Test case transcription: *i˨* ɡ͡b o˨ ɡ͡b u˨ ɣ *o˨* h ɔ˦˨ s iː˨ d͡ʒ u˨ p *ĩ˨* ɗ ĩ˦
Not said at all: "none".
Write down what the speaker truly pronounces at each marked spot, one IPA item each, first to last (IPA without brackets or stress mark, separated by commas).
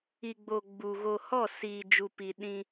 i˨, o˨, i˨